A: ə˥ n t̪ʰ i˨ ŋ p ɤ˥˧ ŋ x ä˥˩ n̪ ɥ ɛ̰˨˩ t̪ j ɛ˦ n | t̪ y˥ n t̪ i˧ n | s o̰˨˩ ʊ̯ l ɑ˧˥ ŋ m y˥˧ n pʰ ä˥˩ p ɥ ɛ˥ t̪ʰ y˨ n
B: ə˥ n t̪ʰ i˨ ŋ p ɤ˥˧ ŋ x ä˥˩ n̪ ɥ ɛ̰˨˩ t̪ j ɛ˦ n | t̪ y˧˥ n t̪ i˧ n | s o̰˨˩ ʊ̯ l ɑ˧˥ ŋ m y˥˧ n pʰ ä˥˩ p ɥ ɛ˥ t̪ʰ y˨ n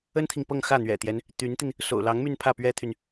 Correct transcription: B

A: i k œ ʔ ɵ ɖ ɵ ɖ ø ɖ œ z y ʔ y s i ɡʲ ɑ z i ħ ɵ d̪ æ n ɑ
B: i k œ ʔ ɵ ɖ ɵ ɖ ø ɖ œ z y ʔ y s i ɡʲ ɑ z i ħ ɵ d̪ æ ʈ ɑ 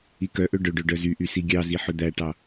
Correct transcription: B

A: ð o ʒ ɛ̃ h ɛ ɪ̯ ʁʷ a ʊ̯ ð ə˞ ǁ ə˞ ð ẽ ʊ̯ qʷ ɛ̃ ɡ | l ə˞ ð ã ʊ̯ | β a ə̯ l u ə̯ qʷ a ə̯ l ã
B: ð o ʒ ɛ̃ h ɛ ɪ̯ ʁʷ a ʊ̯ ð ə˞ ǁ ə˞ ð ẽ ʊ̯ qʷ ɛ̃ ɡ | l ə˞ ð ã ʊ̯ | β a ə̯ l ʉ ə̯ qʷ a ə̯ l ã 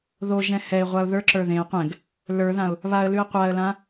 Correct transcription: B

